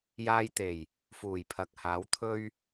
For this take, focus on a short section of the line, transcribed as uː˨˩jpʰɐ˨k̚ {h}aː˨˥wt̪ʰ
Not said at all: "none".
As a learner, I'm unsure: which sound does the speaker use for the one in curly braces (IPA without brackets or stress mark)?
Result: h